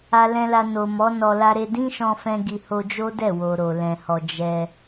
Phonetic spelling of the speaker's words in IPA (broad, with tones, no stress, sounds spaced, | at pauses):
a˧ l ɛ̃˧ l a˧ n o˨ m ɔ˨˦ n ɔ˧ l a˦ ɾ e˦ d ĩ˦ ʃ ɔ̃˧ f ɛ̃˦ ɡ i˧ h o˧ d͡ʒ o˦ d ɛ˦˨ w o˨ ɾ o˨ l ɛ̃˨ h ɔ˨ d͡ʒ ɛ˧